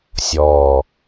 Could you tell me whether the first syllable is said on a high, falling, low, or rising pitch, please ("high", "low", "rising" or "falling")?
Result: low